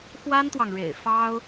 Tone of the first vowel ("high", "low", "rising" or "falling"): high